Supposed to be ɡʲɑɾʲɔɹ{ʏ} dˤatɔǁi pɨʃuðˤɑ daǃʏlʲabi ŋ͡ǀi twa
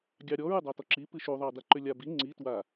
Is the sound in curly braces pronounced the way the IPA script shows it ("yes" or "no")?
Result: no